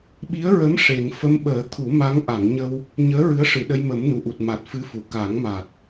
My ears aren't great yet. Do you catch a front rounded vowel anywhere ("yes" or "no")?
no